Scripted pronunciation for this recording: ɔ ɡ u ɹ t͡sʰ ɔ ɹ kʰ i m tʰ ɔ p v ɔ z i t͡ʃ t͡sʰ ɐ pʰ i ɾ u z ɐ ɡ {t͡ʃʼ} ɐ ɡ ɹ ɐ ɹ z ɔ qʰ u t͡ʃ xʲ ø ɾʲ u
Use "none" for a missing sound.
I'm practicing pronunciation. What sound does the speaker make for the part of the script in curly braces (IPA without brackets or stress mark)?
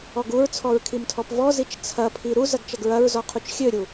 t͡ʃ